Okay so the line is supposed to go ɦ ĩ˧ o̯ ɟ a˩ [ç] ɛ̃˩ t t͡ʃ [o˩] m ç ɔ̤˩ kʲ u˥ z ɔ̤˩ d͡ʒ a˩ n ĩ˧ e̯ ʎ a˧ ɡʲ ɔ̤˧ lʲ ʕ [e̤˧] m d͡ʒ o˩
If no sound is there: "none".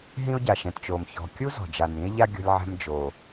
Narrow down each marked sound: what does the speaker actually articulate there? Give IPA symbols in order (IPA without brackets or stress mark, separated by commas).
ʃ, o˩, ɛ̤˧